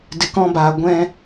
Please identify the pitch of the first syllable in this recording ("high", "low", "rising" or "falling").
low